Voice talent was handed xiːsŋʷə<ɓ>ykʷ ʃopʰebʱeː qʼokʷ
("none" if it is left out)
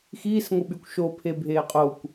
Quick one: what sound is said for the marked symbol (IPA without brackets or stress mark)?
ɓ